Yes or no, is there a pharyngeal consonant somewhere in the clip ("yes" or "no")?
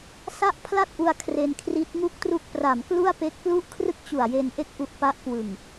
no